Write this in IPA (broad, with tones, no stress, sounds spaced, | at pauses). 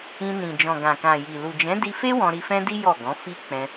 ĩ˧ n ĩ˨ d͡ʒ ɔ̃˨ ɡ ã˨ k ã˨ j i˨ l u˨ d͡ʒ ɛ̃˨˦ d i˧ f e˦ w ɔ̃˧ ɾ i˧ f ɛ̃˦ d i˦ j ɔ˦˨ ɡ ɔ̃˨˦ f i˦ k͡p ɛ̃˧